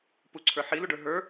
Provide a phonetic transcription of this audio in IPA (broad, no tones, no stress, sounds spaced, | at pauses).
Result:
p u ǀʰ ə˞ ħ i l u ɖ ə˞ ɦ ə˞